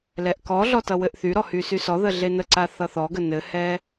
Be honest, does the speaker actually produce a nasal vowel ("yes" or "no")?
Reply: no